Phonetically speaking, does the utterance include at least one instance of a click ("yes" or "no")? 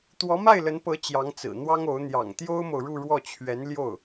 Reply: no